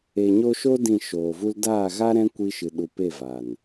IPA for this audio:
e˨ ɲ o˧ ʃ o˦ d ĩ˦˨ ʃ oː˨ v u˦ l d aː˦˨ ɣ a˦ ɾ ɛ̃˦ kʷ i˧ ʃ ɨ˨ ɗ u˨ p e˦˨ v a˨ n

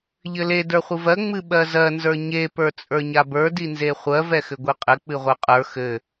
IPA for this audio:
ʎ ɘ l e d ə˞ χʷ ɨ v ɜ ŋ͡m ɨ ɓ ɜ z ɜ n z ə˞ ɲ e p ə˞ t͡sʼ ə˞ ɲ a b ə˞ d i n z e χʷ ɜ v ɛ x ɘ ɡʷ i qʼ ɘ k͡p ɨ ʁʷ e qʼ ə˞ x ɘ

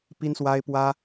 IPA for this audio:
p i˦ n s w a˦ ɪ̯ p w ä˦

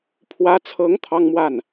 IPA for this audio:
pʰ w ä˧˥ t͡sʰ ɤ˧˥ ŋ t̪ʰ ɑ˥ ŋ m w a˥˩ n

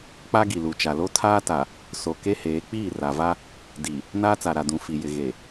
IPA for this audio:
k͡p a˦ ɡ i˨ l u˨ t͡ʃ a˨ l o˦ tʰ aː˦ t a˨ | s o˨ k e˦ h eː˨˦ k͡p iː˦˨ r a˨ v a˦ | d i˨ | n aː˦ t͡s a˨ ɾ a˨ d ũ˨ f i˨ j ɪ˨ ɣ e˨

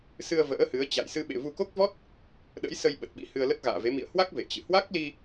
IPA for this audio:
s ɨ˧ ə̯ v ə̰ː˧˥ h ɨ˨˦ ə̯ t͡ɕ a̰˧˨ j s ɨ˧ ɓ ḛ˧˨ v u˧ k o˦˥ k̚ v ɔ˦˥ t̚ | ɗ ə̰˧˥ j s ə˧ j ɓ ə˨˩ t̚ ɓ ḭ˧˥ h ɨ˧ ə̯ l ə˦˥ t̚ ɣ a̰ː˧˨ v e˨˦ m ḭ˧˨ ə̯ h w a˦˥ k̚ v ḛ˧˨ t͡ɕ ɨ̰˧˨ h w a˦˥ k̚ l i˧

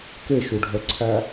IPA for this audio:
k e ʃ u ɖʱ œ ǀʰ æ

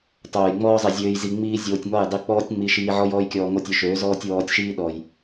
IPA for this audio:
tˤ oː˨ j ŋ͡m ɔː˦ zˤ i˨ zʲ øː˧ j z i˧ ŋ͡m iː˦ zʲ oː˧ tʲ ŋ ɔ˦˨ j dˤ i˦˨ k͡p ɔː˦ tʲ ŋ͡m i˧ ʃ iː˧ ʕ ɔ˦ j ɔː˦ j kʲ ɔː˧ ŋ o˦ tʲ ø˧ ʃ øː˨˦ z ɔː˧ tʲ w ɔː˧ tʲ ʃ iː˦ ɗ ɔ˨ j

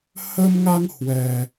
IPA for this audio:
h ə˧ m ŋ a˧ ŋ h w ɛ˧

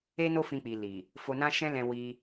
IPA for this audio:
e˦ n o˦ f ĩ˧ k͡p i˨ l i˨ | f o˧ n ã˦ ʃ ɛ̃˦ l ɛ̃˧ w i˧

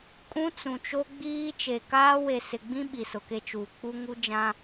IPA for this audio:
kʼ ũ˦ t͡s ũ˨ t͡ʃ o˦ ɡ͡b iː˦ t͡ʃ e˨ k aː˦ w e˨ s ɪ˨ ɡ͡b ĩ˦ ɓ i˨ s ʊ˨ k e˦ t͡ʃ uː˨ k͡p u˦ ŋ u˦ d͡ʒ ã˦

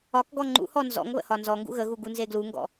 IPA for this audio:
ɒ k ɡ ɔ ŋ͡ǃ ṵ h ɔ n z ɔ̰ ŋ β ə̰ h ɒ n z ɔ ŋ ɡ ṵ ɣ ə ɣ u ɡ u n z e ɡ l u ŋ ɡ ɔ̰

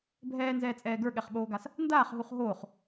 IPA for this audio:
bʱ ɛː n z ɛː t͡sʼ ɛː ɡ ə˞ ɠ ɛ χ ɓ oː ɡ a s | n d aː χ ɦ u χ ɦ oː χ

